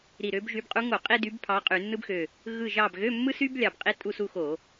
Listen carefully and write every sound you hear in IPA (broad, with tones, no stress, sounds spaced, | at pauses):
ɾ i˧˩ ɾ ø˧˥ b ʒ y˧˥ b qʼ u˧˥ ŋ o˧˩˧ qʼ i˥ d y˧˥ b pʰ ɑ˧˥ qʼ y˧˩˧ nː ɯ˥ b x ø˧˩ | ɣ ɯ˥˧ ʒ ɑ˥˧ b ɣ ø˧˥˧ mː ɯ˥ s y˥ b lʲ ɑ˧˩ b qʼ i˥ tʼ u˥˧ s u˥˧ x o˧˩˧